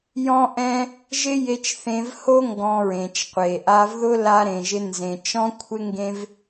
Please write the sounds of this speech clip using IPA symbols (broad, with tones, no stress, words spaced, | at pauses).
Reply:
jɔ̃˦ʔɛ̃˦ | ʒɪ˦ je˧t͡ʃθẽ˧vho˦ ŋɡɔ̃˧ɹẽ˨t͡ʃ qʷe˨ ʔa˧vðʊ˦ la˧ɾẽ˨ʒɪ˧ nzẽ˨ t͡ʃɔ̃˦kʷʰɪ˦ŋɡẽ˦v